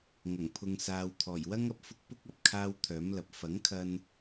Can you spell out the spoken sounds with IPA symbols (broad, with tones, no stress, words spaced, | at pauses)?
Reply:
ŋɐ˨˩ŋpʰʊ˨ŋsaː˨wt̪ʰɔː˨˩j wɐ˥ŋɐ˨p̚fʊ˥k̚ pʊ˥k̚ɐ˨p̚ kʰaː˥wt̪ʰœː˨˥mlɐ˨˥p̚ fɐ˨˥ŋkʰɐ˧n